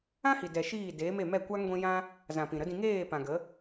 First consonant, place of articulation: glottal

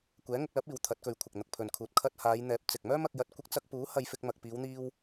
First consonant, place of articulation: velar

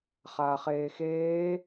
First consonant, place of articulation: uvular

